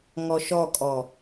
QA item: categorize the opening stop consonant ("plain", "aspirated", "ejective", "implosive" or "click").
ejective